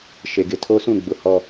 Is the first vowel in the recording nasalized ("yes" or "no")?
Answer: no